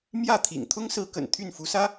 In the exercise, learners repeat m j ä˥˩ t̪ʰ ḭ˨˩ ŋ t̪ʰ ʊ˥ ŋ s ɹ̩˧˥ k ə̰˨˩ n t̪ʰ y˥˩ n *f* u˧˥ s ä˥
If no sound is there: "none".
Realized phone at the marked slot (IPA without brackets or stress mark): f